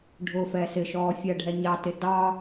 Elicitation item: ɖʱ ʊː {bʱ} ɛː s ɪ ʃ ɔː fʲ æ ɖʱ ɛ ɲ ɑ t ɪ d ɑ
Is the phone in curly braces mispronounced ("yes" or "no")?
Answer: yes